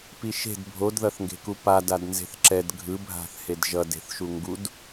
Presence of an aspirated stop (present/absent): absent